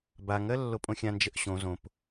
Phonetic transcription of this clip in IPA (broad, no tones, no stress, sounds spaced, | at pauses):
b a ŋ ɜ lː o pʼ õ xʲ ã n d͡ʒ ə ʔ ɕ õ z õ p